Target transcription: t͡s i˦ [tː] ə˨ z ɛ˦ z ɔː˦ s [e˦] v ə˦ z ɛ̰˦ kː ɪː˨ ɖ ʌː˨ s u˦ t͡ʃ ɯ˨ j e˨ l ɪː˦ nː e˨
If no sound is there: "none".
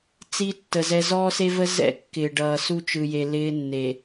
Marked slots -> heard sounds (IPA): tː, e˦

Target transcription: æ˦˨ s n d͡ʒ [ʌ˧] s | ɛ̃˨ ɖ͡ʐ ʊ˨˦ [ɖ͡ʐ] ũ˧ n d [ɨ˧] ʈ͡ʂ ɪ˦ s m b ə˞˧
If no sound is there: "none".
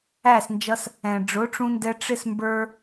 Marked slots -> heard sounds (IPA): ʌ˧, ʈ͡ʂ, ɛ˧

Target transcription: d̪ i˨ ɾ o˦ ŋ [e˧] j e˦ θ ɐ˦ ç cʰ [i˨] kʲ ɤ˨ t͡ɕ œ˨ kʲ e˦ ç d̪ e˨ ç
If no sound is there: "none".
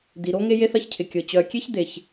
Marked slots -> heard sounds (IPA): e˦, ɪ˨

